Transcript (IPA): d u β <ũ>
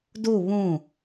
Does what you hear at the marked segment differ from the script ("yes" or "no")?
no